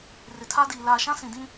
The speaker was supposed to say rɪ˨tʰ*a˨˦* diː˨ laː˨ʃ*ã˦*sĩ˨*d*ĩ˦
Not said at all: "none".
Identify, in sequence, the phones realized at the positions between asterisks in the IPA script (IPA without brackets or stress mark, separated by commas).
a˦, ã˦, d